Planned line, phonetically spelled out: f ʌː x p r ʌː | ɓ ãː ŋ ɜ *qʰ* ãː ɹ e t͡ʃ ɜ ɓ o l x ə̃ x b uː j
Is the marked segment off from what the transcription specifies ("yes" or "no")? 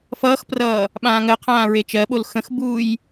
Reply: no